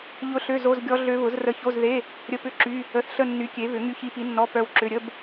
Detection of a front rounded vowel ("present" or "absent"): present